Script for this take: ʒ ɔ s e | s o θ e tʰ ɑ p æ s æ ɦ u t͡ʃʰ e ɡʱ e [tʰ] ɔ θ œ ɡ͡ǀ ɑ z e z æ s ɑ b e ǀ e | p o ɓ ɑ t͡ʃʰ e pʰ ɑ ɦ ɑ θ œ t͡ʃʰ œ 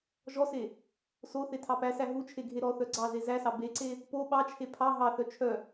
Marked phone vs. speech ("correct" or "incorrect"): incorrect